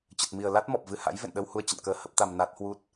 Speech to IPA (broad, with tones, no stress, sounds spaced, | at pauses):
t͡ɕ ə˨˩ t̚ m i˨˩ ə̯ l a˦˥ t̚ m ɔ˨˩ p̚ v ɨ˧ h a̰˧˥ j v ḛ˧˨ n ɗ ə˧ w h u˨˦ ə̯ t͡ɕ ə̰˧˨ n k əː˧ h ə˦˥ p̚ t̪ a˧ m n a˦˥ t̚ h w u˦˥ t̚